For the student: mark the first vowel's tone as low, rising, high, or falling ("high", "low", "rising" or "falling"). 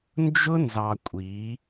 high